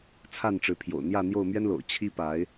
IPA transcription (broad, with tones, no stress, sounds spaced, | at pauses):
t͡sʰ a˥˨ n ʈ͡ʂ ɻ̩˨˦ pʰ j o̰˨˩ ʊ̯ n̪ j ä˥˨ n̪ j o˥˨ ʊ̯ m ɥ ɛ˦ n l o̰˨˩ ʊ̯ t͡ɕʰ i˦ p a˨˦ ɪ̯